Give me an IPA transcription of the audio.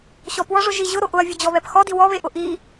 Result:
ɕ ɔ p w ɔ ʐ ʊ ʒ i ʑ ʊ ɾ o ʔ ʊ ɐ̯ vʲ ʊ d͡ʑ ɔ β ɛ p x ɔ d i w ɔ β e ʔ ʊ ʔ i

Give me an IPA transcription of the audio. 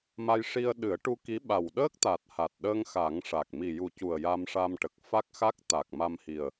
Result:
m a˧ j ʂ i˧ ə̯ ɗ ɨ˨˩˦ ə̯ ʈ u˧ k i˧˥ ɓ a˨˩ w ɗ əː˦˥ k̚ t̪ a˨˩ t̚ h a˨˩ t̚ ɗ əː˧ ŋ x a˨˩˦ ŋ ʂ a˨˩ k̚ m i˨˩ j u˨˩ c u˨˩ ə̯ j a˧ m ʂ a˧ m ʈ ə˨˩ k̚ f a˦˥ k̚ x a˦˥ k̚ t̪ a˨˩ k̚ m a˧ m h i˨˩ ə̯

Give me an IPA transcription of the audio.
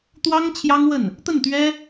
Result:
t̪ w ɑ˥ ŋ t͡ɕʰ j ɑ˥ ŋ w ə˥˩ n | t̪ ə˥˩ n t̪ ɥ ɛ˥

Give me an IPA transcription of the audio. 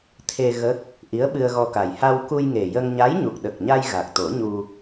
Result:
t̪ʰ e˧ ɣ ə˦˥ k̚ | ʔ i˧˥ ə̯ ɓ ɨ˧ ə̯ ɣ ɔ˧ k a˨˩ j h a˧ w k u˧ j ŋ e˨˩ j ə˧ ŋ ɲ a˧˥ j ɲ u˨˩ k̚ ɗ ə˨˩ k̚ ɲ a˧ j ɣ a˨˩ k̚ t̪ o˨˩˦ ɲ u˧

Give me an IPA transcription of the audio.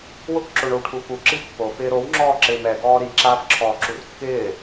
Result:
w ʊ k ǁ o ɳ o w ʈʰ u f u ǁ i pː o f ɪː ɾ o w ŋ͡ǁ ɔː ǁ ɪː m ɛ ɡ ɔː ɾ i ǁ aː f ǁʰ ɔː ǁ u r kː ɪː

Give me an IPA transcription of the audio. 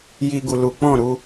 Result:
j i˦ ɡ u˧ l u˨ k͡p ɔ̃˦˨ ɾ u˧

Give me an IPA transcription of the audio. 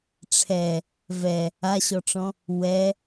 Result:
ʈ͡ʂʰ ɛ | v ɛ | a ɕ ɔ ʈ͡ʂ ɔ̃ | w ɛ

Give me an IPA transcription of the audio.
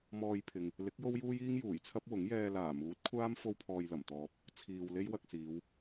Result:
m ɔː˧ j pʰ ɪ˨ ŋ | l ɪ˨˥ k̚ j o˥ w j uː˥ j iː˥ ŋ j uː˨˩ j t͡sʰ ɐ˥ p̚ w ʊ˨˥ ŋ j ɛː˧ l aː˨˩ m uː˨˥ t̚ kʷʰ aː˥ m f o˥ w pʰ ɔː˧ j l ɐ˨˩ m t̪ ɔː˧ p̚ | t͡sʰ iː˨ w l e˥ j w ɐ˧ k̚ s iː˨˧ w

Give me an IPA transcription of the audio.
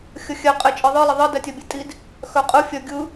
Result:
xʲ ə xʲ ɛ qʼ e t͡ʃʼ i ðˤ ɯ lˠ ə ðˤ ə d ɛ tʲ œ bʲ ɛ tʼ i d | x œ qʼ ɯ fʲ œ ɡʲ ɯ

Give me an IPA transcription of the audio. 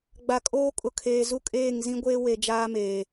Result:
ɡ͡b a˨ kʼ oː˦ kʼ ʊ˨ kʰ eː˨ z u˦ kʼ eː˦˨ ŋ z ĩ˦ ɡʷ eː˦ w e˨ d͡ʒ aː˦ m eː˨

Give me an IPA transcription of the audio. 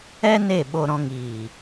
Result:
ɛ˦ n e˦˨ ɓ o˧ ɾ ɔ̃˧ ŋ iː˨

